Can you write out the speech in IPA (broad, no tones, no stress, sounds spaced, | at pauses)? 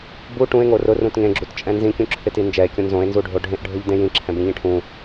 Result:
b u ʈ ũ e̯ ŋ o r ʊ r ũ t ŋ ẽ ɡ͡ǁ u t t͡ʃʼ ɛ̃ n z ĩ kʲ ũ ǁʰ ɪ t i n d͡ʒ ɛ e̯ kʲ õ n z õ e̯ n z u ɖʱ o ɖʱ ẽ ʔ ɖʱ ʊ ʎ d ẽ j ĩ ǁʰ ɛ̃ b ĩ ʎ ĩ ʈʰ ũ